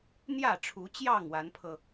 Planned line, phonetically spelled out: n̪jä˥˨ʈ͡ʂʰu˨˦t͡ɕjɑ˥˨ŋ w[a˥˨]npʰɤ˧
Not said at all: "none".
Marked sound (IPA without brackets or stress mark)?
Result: a˨˦